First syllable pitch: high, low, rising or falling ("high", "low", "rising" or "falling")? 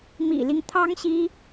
low